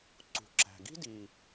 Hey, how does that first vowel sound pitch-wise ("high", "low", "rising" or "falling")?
low